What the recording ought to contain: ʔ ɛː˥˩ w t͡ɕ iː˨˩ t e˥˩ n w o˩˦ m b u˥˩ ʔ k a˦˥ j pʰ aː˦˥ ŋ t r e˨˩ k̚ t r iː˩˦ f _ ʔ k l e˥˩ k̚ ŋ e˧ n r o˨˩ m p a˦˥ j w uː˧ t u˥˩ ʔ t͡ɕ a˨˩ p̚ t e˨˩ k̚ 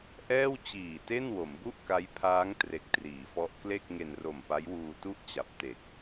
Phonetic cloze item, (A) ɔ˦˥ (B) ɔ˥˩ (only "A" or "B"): A